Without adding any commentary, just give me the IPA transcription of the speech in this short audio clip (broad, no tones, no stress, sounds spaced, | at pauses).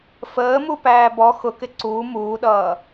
f əː m u p æː b ɔ x ʊ k ɪ ǀ uː m uː ɗ ʌː